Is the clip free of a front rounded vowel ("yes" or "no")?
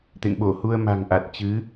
yes